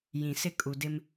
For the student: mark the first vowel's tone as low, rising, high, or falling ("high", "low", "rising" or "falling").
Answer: low